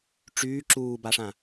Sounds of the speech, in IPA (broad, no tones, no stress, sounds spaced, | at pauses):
ʈ͡ʂ yː ǁ uː b a ʂ ã